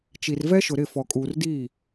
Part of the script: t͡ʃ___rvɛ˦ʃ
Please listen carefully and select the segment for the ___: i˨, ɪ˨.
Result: i˨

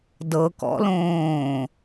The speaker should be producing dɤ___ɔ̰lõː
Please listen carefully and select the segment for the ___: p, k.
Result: k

